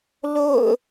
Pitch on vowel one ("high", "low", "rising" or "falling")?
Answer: falling